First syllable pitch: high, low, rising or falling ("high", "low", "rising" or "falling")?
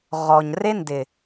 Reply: low